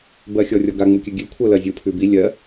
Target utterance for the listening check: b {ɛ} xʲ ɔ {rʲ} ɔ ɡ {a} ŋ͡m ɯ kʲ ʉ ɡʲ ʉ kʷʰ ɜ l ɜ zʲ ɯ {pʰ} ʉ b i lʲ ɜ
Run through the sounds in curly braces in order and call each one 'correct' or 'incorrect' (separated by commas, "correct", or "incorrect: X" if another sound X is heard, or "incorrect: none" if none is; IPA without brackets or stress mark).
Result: incorrect: ɜ, correct, correct, correct